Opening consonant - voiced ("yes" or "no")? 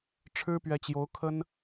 no